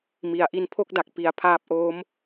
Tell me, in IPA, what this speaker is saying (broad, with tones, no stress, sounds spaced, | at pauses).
m i˩˦ a̯ ʔ i˧ n pʰ o˥˩ k̚ d a˨˩ k̚ p i˩˦ a̯ pʰ aː˦˥ p̚ ʔ oː˦˥ m